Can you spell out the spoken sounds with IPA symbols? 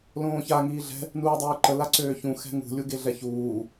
l õː ç a ŋ iː ɮ ɛ̤ | n uː dˤ øː ǃ ə l a ǀ øː ç ũ x ɛ̤ ŋ ṳ lʲ u ɡ e ɮ ɛ ç uː

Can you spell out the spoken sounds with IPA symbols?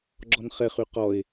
ɡ͡ǁ ɔ n χ ɛ χ y q ɔ e̯

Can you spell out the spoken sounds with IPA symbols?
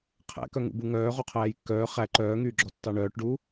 qʰ æ̰ k œ ŋ ṵ b u ŋ œː ʁ o qʰ æː j kː œː χ æ ǃ œː ŋ yː ɡ͡ǁ ɔ tː ɑ ɳ œː ʈ ɖ uː

